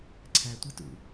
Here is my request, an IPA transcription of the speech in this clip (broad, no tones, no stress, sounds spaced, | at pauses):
ǀʰ æ tʷ i t ṵ